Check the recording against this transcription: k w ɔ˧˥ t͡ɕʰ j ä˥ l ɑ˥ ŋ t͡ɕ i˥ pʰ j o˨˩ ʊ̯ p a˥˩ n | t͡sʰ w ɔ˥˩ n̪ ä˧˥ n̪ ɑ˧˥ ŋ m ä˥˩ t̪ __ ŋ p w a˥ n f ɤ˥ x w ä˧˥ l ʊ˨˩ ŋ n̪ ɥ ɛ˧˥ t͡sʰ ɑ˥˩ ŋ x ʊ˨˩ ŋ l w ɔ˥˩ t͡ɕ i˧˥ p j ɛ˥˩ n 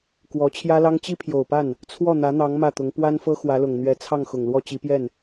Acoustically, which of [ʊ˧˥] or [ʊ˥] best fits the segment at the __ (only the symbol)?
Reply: ʊ˧˥